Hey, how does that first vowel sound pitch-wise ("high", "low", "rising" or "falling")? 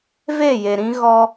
falling